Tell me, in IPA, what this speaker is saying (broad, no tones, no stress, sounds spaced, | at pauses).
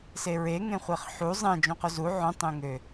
s e ɹ e ŋ ẽ χʷ e χ ħ u zˤ ẽ d͡ʒ õ q o z u ʕ õ tˤ ẽ ŋ ø